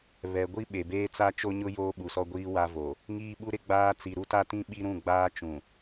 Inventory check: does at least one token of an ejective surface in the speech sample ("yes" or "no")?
no